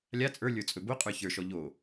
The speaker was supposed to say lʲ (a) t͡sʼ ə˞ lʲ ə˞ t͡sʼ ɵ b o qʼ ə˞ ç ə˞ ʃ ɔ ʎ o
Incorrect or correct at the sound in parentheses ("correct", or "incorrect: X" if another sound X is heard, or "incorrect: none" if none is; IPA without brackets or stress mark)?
correct